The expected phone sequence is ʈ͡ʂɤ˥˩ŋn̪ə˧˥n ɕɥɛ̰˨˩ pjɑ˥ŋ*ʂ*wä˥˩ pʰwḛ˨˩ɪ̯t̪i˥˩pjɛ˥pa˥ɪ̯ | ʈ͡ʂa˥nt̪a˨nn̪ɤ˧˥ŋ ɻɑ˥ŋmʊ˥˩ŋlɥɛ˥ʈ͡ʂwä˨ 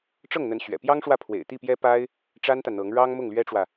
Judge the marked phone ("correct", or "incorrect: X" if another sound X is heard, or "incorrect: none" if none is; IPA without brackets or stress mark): correct